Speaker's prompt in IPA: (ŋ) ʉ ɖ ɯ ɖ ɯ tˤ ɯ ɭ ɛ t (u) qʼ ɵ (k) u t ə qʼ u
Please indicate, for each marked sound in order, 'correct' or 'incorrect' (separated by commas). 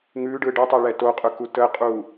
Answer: correct, incorrect, correct